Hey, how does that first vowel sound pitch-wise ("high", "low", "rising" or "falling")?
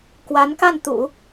rising